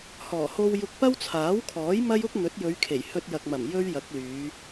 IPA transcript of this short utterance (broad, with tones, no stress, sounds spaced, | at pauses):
h ɔː˨˩ h o˧ w j ʊ˧ k̚ p ɐ˥ w t͡sʰ aː˨˥ w kʰ ɔː˨˥ j m ɐ˥ j ʊ˥ k̚ n̪ ɵ˨˥ t̚ j ɵ˨˧ ɥ kʰ e˨˩ j h ɵ˧ t̚ j ɐ˨ k̚ m ɐ˨˩ m j ɵ˥ ɥ j ɐ˨˥ k̚ l yː˨˧